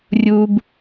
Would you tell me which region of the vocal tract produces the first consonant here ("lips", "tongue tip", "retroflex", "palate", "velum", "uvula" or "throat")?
tongue tip